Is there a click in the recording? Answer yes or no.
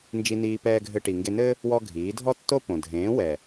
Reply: no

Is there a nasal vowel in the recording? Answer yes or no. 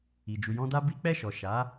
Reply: yes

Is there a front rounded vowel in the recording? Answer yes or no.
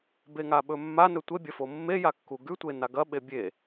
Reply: no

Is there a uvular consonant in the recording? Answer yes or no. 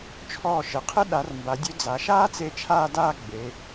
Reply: yes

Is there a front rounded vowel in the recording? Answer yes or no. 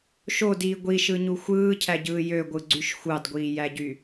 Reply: yes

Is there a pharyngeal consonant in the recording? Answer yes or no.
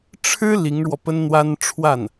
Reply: no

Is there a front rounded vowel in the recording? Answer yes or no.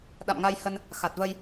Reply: no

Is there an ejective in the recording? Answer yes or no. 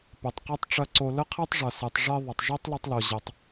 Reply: no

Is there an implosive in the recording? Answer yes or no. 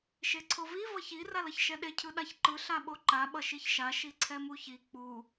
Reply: yes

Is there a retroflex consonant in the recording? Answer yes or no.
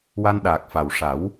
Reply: yes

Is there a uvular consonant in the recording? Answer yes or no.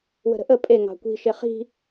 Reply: yes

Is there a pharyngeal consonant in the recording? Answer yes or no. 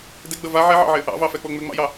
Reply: yes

